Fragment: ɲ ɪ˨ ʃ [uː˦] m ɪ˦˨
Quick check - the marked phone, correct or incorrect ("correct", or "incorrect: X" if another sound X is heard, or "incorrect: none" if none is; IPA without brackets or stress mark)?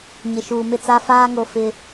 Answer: incorrect: uː˨